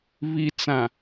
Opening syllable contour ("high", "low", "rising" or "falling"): low